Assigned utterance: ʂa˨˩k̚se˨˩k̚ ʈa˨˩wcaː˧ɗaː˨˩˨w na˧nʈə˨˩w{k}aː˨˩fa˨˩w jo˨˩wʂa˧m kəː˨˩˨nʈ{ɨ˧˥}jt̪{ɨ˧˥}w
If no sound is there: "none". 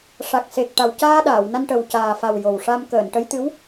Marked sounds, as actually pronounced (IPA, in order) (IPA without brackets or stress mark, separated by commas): c, ə˧˥, ɨ˧˥